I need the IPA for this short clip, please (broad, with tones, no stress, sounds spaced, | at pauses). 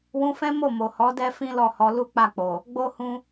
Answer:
w ũ˧ f ɛ̃˦ m o˦˨ m o˨ h ɔ˨˦ d ɛ˦ f ĩ˦ l ɔ˦˨ h ɔ˧ l u˦ k͡p a˦˨ k͡p o˨ | ɡ͡b o˦ h ũ˦